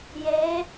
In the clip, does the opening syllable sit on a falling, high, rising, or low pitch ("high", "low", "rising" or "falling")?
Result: rising